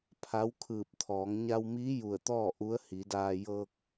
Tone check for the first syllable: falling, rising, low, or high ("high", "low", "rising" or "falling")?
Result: rising